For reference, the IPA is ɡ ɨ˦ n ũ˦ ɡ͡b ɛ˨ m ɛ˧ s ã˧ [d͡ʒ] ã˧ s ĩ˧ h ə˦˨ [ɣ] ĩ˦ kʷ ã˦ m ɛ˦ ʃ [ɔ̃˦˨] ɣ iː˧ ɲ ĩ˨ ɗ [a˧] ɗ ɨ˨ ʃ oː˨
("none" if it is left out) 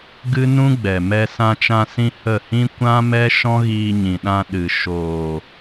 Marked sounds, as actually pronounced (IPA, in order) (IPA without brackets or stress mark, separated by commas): t͡ʃ, h, ɔ̃˦, ã˧